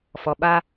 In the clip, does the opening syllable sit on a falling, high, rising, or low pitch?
low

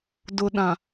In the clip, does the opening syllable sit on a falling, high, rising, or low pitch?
low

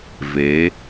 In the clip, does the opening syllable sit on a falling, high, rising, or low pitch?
rising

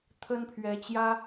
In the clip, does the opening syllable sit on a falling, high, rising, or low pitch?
high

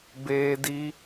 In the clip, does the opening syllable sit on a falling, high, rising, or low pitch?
high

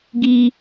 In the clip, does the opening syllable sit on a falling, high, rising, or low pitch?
high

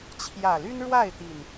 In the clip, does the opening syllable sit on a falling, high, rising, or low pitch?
low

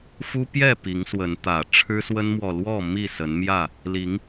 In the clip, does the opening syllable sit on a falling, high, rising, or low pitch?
high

